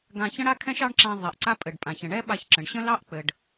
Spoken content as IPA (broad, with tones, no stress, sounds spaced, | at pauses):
ɡ ã˧ ç ə̃˥ ɽ a˥ kʰ ɛ̃˥ ʃ ɑ˥ ɳ ǁ ã˧ ðˤ ɛ˩ ʔ ǀ a˥ pʼ ɘ˩ ɖ pʼ ã˩ ç ə̃˩ ɳ ɛ˥ ɓ a˧ ç ǁ ə̃˩ ɳ ɕ ə̃˥ l ɑ˥ ʔ k͡p ɘ˩ ɖ